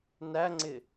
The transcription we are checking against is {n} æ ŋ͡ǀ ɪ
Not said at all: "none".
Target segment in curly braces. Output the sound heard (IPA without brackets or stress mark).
n